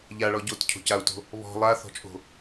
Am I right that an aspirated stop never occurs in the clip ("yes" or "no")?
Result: no